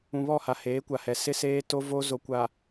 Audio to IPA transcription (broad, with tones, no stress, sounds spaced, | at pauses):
ũ˨ β ɔ˦˨ h a˨ h eː˨˦ kʷ a˨ h ɛ˨ s ɪ˦ s eː˦ t o˦ v o˦ z o˨ kʷ a˨